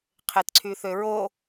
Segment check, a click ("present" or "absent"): present